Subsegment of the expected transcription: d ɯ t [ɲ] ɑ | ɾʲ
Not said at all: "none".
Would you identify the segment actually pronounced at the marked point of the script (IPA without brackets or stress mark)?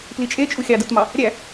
m